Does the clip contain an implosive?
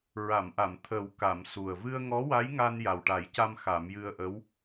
no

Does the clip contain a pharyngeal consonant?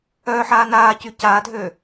yes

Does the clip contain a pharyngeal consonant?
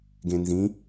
no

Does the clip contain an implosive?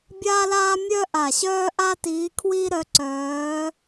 no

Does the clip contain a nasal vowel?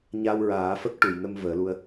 no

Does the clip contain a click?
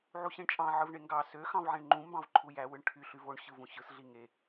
yes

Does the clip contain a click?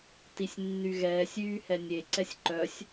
yes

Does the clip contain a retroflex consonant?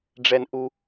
yes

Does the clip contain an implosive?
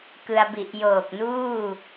no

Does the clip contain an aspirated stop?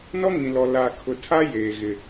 yes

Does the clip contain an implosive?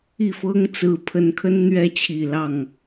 no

